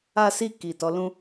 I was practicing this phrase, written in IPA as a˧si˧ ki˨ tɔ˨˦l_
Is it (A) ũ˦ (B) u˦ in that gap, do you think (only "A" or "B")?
A